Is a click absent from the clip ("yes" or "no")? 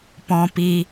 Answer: yes